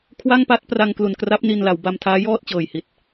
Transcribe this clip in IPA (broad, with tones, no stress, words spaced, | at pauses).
kʰwa˥˩ŋpa˦˥t̚ pra˧ŋklu˨˩nkra˦˥p̚ ni˧nla˩˦wba˧m tʰaː˦˥jɔː˥˩t̚t͡ɕɤː˨˩jhi˨˩t̚